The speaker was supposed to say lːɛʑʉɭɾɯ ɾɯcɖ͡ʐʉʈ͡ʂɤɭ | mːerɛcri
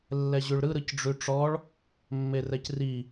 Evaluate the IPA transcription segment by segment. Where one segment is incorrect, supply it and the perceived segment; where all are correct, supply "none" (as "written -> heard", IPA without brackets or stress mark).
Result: ɤ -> ɔ